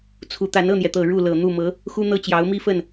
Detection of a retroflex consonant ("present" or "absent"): present